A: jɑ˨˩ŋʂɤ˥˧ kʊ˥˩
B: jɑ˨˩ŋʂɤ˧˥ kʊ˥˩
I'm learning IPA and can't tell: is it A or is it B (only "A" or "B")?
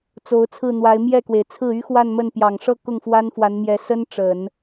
A